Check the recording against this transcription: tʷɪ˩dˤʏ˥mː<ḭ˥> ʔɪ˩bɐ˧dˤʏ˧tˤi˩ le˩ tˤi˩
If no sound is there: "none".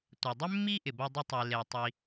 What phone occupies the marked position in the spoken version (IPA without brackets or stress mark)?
i˥